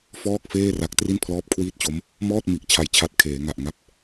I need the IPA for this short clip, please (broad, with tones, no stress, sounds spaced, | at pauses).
f ɔː˥˩ k̚ f eː˥˩ r a˦˥ k̚ t r i˥˩ n pʰ l ɔː˥˩ p̚ kʰ w iː˥˩ t̚ t͡ɕ o˦˥ m | m ɔː˥˩ t̚ m i˨˩ ʔ t͡ɕʰ a˩˦ j t͡ɕʰ a˨˩ t̚ kʰ eː˩˦ ŋ a˨˩ ʔ ŋ a˦˥ p̚